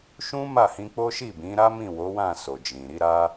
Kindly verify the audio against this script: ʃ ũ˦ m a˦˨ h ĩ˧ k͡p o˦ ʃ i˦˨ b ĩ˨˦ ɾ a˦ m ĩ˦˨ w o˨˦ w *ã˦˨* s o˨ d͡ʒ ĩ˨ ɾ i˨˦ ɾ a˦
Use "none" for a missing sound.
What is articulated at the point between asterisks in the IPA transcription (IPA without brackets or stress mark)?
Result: ã˦˨